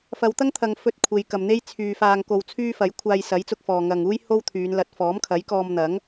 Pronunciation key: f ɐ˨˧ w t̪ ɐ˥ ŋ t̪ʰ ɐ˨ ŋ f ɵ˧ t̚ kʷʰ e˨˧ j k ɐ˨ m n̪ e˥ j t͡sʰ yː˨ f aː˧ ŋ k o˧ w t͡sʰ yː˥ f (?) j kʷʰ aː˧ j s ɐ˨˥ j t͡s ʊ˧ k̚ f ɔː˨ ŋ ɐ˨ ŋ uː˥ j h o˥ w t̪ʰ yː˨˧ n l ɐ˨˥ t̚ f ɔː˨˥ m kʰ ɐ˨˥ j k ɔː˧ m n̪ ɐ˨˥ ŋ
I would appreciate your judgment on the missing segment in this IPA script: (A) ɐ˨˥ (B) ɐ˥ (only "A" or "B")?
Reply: A